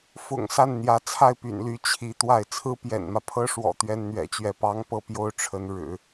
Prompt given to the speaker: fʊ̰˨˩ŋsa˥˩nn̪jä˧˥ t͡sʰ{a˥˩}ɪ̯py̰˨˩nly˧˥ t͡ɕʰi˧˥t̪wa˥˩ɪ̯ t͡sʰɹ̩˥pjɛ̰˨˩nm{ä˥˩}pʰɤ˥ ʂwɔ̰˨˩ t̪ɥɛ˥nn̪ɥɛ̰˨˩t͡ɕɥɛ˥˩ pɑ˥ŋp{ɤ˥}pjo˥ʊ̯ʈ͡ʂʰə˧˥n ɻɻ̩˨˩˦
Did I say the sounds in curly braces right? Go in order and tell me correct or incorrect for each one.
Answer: correct, incorrect: ä˦, incorrect: ɤ˥˩

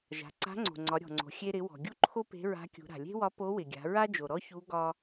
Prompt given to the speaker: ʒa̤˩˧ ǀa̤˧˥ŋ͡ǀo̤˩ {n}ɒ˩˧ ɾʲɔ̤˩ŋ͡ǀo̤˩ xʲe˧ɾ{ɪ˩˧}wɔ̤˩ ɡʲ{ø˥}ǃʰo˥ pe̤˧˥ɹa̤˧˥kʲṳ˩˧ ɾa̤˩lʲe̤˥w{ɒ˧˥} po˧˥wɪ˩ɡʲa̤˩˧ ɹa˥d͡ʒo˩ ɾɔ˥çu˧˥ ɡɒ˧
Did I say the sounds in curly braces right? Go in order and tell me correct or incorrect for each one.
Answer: incorrect: ŋ͡ǀ, correct, incorrect: u˥, correct

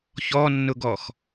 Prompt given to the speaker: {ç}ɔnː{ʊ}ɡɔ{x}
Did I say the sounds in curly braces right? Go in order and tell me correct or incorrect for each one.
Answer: correct, correct, correct

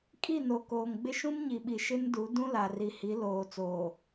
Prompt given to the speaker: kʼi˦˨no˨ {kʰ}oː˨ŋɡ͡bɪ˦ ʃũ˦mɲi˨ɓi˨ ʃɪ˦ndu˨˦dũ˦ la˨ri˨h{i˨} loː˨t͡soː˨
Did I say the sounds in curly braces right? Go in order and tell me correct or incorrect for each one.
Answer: incorrect: k, incorrect: i˨˦

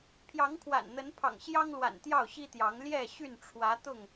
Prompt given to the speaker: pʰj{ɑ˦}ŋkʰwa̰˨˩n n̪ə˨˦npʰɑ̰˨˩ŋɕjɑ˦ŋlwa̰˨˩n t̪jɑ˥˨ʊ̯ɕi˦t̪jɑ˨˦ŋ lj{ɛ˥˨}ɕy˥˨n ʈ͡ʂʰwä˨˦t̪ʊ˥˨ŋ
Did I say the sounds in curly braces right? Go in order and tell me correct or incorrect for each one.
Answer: incorrect: ɑ˨˦, correct

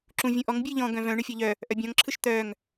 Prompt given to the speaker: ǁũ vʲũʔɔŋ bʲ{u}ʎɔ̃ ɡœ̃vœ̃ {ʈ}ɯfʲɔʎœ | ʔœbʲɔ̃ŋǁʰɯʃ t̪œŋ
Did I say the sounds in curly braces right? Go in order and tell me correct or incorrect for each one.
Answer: incorrect: ɯ, incorrect: ɳ

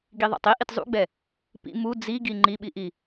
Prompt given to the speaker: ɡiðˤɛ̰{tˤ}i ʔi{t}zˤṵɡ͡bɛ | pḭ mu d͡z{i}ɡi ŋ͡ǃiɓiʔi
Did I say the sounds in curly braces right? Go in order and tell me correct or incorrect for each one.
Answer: correct, correct, correct

